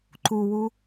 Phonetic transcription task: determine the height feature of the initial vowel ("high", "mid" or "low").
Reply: high